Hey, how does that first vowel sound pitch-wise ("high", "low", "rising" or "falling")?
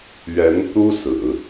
rising